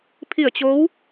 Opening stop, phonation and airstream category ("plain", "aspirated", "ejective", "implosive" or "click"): aspirated